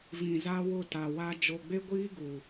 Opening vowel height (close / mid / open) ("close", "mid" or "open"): close